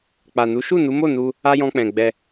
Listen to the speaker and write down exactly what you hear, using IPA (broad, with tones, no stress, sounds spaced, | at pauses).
k͡p a˨ n u˨˦ ʃ u˦˨ n u˨˦ m o˦˨ n u˧ | a˦ j ɔ̃˧ k͡p ɛ̃˨ ɡ͡b ɛ˧